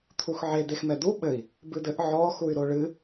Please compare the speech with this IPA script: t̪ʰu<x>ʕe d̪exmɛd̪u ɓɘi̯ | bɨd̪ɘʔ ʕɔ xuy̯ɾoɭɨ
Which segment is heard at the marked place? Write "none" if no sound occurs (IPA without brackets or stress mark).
x